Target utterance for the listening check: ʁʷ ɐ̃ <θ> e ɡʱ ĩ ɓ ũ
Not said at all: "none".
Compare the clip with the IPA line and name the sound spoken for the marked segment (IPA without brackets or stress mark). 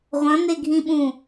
n